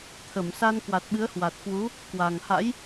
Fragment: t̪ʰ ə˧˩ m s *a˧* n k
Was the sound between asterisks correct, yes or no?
yes